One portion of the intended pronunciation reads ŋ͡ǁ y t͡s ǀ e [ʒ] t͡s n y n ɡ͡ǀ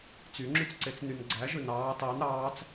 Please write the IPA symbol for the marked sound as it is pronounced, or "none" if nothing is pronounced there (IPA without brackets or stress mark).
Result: none